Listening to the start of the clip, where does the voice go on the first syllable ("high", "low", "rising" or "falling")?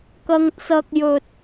low